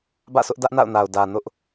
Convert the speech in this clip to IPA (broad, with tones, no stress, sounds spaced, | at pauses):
b ä̰˦˨ s ʊ˦ ʔ d ä˦ ʔ n a̰˦˨ ʊ̯ n a˨ ʊ̯ d ä˨ n ʊ˦ ʔ